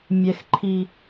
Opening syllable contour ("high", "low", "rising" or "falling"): high